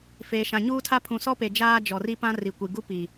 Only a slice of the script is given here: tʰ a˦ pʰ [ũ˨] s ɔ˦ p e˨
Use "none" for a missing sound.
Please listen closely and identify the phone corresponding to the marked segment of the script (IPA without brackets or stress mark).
ũ˨